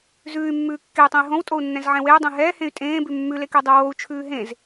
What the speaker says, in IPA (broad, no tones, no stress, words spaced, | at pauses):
zʉːy̯mːʉː kːey̯tˤẽi̯ ɦõwtʼou̯nːɛ̃zʕɛ̃ weu̯dˤẽ ɦɛːhẽy̯ tʼẽːbʉ mːʉlekɛdˤɛ wou̯t͡ʃʰʉː ɦẽz